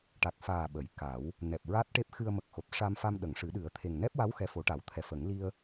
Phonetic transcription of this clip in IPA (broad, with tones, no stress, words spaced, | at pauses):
ʈa˨˩k̚faː˨˩ ɓə˨˩˦jka˨˩˦w | nɛ˨˩p̚ɹa˦˥t̚ʈe˦˥p̚ xɨ˧ə̯mə˨˩k̚xo˨˩p̚ ʂa˧mfa˧m ɗə˨˩˨ŋʂɨ˨˩˦ ɗɨ˨˩˦ə̯t̪ʰe˨˩ŋ nɛ˦˥p̚wa˧˥w xɛ˧˥fo˨˩˦ʈa˨˩˦w t̪ʰɛ˨˩fə˨˩˦ŋ li˧ə̯